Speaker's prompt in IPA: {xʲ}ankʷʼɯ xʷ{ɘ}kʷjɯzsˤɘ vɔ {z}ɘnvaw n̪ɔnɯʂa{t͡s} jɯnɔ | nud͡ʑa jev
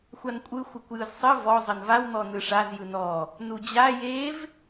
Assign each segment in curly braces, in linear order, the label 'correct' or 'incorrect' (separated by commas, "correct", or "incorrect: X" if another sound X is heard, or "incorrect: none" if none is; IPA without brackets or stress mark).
incorrect: xʷ, correct, incorrect: zˤ, incorrect: z